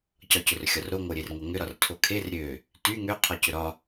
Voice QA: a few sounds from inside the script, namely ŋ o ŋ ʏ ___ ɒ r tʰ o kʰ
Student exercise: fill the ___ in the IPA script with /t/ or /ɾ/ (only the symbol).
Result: ɾ